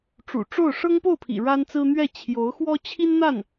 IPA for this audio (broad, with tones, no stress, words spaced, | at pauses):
ʈ͡ʂṵ˨˩ʈ͡ʂo˥˩ʊ̯ ʂɤ˥ŋpo˥˩ʊ̯pʰḭ˨˩ ɻa˥nt͡sɹ̩˥ n̪ɥɛ˥˩ t͡ɕʰjo˧˥ʊ̯xwɔ˥ t͡ɕʰi˥nn̪a˥˩n